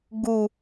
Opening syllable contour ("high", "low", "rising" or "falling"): low